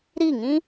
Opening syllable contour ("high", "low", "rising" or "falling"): falling